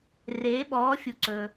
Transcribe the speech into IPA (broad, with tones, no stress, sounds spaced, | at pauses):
r eː˧˥ ɓ ɔː˧˥ fʲ u˧ ǀ ɵ˧